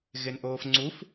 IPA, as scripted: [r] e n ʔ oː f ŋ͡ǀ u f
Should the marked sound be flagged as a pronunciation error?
yes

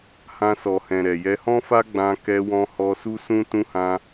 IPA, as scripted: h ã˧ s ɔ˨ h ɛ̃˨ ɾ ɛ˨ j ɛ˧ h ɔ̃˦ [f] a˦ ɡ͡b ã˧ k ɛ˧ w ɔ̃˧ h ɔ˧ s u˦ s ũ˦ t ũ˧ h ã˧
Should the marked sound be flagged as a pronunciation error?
no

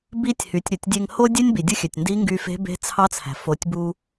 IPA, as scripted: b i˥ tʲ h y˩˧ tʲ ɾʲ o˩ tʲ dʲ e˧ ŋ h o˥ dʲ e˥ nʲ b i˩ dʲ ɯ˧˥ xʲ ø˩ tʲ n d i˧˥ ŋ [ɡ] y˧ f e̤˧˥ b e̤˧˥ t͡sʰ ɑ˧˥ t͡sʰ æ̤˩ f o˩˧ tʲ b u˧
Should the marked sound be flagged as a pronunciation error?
no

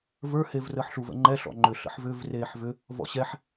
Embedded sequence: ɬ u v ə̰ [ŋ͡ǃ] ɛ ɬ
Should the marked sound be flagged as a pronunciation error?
no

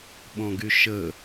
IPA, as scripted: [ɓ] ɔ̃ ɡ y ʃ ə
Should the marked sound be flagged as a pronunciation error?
no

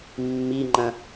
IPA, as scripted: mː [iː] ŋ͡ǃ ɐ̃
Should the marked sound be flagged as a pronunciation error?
yes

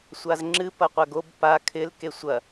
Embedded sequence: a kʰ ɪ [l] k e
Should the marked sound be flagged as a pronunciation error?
no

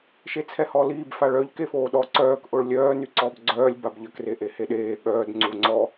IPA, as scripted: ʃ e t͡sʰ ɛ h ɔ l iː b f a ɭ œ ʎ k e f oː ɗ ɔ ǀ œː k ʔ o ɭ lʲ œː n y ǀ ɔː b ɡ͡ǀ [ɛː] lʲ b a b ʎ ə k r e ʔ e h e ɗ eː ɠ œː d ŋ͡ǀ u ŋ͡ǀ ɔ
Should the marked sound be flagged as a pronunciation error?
yes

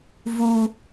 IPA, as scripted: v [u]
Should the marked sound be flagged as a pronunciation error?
no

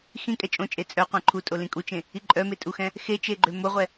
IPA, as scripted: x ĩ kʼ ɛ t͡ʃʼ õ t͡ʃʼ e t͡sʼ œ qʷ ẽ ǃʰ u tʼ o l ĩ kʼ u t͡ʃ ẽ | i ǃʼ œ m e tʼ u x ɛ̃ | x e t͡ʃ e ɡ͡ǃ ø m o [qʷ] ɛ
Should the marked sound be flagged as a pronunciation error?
yes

